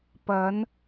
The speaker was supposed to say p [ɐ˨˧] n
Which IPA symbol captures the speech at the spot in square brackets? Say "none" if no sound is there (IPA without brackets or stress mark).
ɐ˨˧